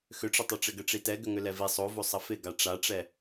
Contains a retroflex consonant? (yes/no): yes